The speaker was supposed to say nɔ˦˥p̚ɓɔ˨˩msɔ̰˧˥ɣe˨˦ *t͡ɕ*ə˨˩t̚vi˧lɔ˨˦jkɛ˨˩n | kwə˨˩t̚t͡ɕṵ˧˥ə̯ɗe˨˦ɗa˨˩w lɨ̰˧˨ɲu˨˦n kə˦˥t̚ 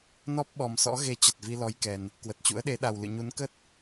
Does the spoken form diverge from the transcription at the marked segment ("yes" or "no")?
no